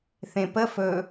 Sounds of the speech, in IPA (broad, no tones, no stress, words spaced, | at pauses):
θẽpə fɵ